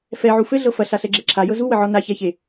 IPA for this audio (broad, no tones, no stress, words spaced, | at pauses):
fɛʕu fɘɮɤ fɐɬaɬɛɡ͡ǁɛ ǁʰajɤ zuwəʕɔ naçɛçe